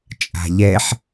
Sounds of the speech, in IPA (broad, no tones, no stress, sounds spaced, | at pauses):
t͡ʃʼ a̤ ʎ ɛ ħ